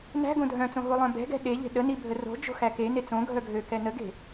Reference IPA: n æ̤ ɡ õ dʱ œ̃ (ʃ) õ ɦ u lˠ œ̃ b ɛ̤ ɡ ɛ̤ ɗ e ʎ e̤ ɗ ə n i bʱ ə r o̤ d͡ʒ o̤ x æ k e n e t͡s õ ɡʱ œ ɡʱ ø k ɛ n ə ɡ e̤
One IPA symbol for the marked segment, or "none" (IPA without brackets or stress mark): t͡s